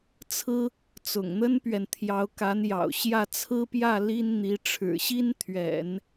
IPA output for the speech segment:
t͡sʰ ɹ̩˥ | t͡s ʊ̰˨˩ ŋ n̪ ə˥ n p ɥ ɛ˨ n t̪ʰ j ɑ˧˥ ʊ̯ k a˧˥ n j ɑ̰˨˩ ʊ̯ ɕ j ä˥˩ t͡sʰ ɹ̩˥ p j ä˥˩ l i˥ n n̪ i˧˥ ʈ͡ʂʰ ɻ̩˨˩ ɕ i˥ n t̪ʰ ɥ ɛ̰˨˩˦ n

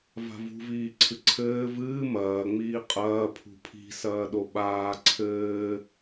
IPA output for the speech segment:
v a̤ v ṳ v iː ǀʰ ɨ ǀʰ ɘː v ɨː m ɐː ŋ͡m iː qʼ ɐː pʰ ṳ pʰ i̤ s ɐː ɗ o ɓ aː ǀʰ ɘː

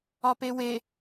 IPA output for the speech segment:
ɒ p e w e

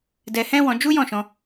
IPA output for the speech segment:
d ɛ˧ h ɛ̃˦ w ɔ̃˧ d͡ʒ u˦ j ɔ̃˦˨ ʃ ɔ̃˧

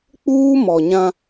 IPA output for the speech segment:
k͡p uː˦ m ɔ˨ ɲ ã˦

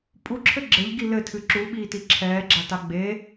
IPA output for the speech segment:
pʼ u ǁʰ ɘ ɡ͡ǁ ɘ ʎ ɡ i l ɘ tʰ ɨ ǁ u ɓ iː t i ǁʰ ɛː ɡ͡ǁ a t a ɡ͡b e

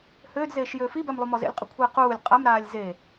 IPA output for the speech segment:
h øː d z eː ʃ j øː f i b ɛ m lˠ u m ɔ z ḛ lʲ qʼ ʉ kʷʰ iː q uː lʲ qʼ a m ɾ aː lʲ z e

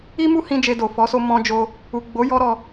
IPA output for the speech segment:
i˦ m u˦ h ĩ˧ d͡ʒ e˧ d o˨ f ɔ˨˦ s o˧ m ɔ̃˧ d͡ʒ o˧ | u˨ ɡ͡b o˨˦ j ɔ˦ ɾ ɔ˧

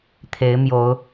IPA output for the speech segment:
t̪ʰ e˨˦ ɪ̯ m j o˨˦ ʊ̯

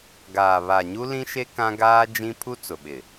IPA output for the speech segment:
ɡ aː˨ β a˨ ɲ u˦ l ĩ˦ ʃ e˦ k ã˦ ɡ aː˦ d͡ʒ ĩ˦ pʰ u˦ t͡s ʊ˨ ɓ ɪ˨

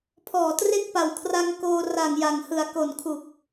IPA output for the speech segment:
pʰ ɔː˨˩ t r e˥˩ k̚ p a˨˩ w kʰ r a˧ ŋ k oː˧ r a˨˩ ŋ j a˨˩ ŋ h ɯ˨˩ a̯ k o˨˩ n kʰ u˨˩ k̚

